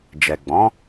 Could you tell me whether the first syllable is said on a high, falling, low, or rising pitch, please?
low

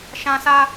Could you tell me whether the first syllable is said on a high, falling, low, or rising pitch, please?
high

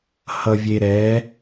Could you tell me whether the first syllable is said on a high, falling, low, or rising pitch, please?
low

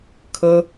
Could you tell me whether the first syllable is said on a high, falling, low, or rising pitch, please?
high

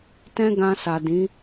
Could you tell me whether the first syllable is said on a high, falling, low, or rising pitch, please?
high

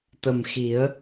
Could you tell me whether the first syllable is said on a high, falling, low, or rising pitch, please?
low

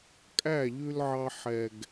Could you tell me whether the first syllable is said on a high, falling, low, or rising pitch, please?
falling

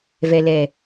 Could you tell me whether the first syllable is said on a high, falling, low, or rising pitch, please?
low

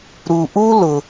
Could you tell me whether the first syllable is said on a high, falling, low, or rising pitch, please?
low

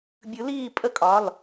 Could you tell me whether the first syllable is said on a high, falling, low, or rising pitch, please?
rising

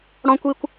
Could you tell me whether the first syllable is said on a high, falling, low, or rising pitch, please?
high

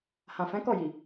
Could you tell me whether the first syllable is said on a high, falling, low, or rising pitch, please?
low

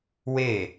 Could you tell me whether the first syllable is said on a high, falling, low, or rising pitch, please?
falling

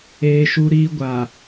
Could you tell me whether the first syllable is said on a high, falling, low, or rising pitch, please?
high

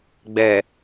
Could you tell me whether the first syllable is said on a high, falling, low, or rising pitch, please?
low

